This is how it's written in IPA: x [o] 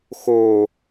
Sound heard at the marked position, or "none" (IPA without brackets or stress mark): o